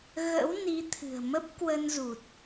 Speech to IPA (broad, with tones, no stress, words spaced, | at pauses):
ɣə̰˧˥wni˨˦t̪ʰɨ̤˨˩ə̯ mə˦˥p̚ kwə˧nzu˨˩t̚